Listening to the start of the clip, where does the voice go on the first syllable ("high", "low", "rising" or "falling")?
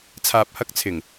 low